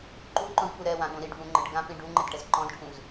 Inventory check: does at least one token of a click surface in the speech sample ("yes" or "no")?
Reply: yes